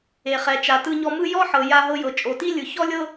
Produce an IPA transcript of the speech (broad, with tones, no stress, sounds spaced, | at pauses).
e˩ χ ɛ˩ t͡ʃ a˩ t ɯ˧ ɲ ɔ˧ m ɯ˥ j ɔ˥ ħ ɤ˩ j a˧ ɦ ɤ˧ j ɤ˩ t͡ʃʼ o˩ t i˥ lʲ ɯ˩ ç ɔ˥ lʲ ɤ˥